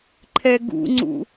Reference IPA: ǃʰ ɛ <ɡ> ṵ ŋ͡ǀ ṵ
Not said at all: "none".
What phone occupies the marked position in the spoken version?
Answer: ɡ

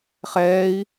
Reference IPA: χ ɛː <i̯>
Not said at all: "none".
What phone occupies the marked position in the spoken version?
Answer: i̯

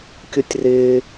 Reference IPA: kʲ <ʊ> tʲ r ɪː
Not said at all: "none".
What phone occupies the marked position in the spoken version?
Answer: ʊ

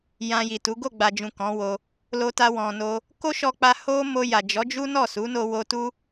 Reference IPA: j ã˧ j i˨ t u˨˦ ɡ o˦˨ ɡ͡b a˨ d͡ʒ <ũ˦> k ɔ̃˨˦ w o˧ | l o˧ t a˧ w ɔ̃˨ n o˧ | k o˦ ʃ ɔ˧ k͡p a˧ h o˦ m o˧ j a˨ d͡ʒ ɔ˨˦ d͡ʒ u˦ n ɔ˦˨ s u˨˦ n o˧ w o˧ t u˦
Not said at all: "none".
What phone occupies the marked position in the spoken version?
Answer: ũ˨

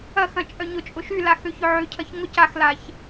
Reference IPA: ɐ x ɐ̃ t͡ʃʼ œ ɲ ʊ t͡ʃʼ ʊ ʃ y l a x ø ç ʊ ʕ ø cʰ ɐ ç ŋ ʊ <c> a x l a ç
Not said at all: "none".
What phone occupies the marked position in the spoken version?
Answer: c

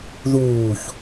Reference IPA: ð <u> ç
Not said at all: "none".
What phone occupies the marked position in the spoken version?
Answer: uː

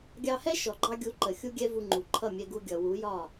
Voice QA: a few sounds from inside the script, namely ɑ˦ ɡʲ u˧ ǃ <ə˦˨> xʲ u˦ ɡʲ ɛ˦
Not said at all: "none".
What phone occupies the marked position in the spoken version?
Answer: ə˨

